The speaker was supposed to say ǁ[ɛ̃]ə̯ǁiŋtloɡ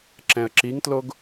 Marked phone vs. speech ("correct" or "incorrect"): correct